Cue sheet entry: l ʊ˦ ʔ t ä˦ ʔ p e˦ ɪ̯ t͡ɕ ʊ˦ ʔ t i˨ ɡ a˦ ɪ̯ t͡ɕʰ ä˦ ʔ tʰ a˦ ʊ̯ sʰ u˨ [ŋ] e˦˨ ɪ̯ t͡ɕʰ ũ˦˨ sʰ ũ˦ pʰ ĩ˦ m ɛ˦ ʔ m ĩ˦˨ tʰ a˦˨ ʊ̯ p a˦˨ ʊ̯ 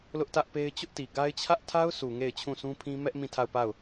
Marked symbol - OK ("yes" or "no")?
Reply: yes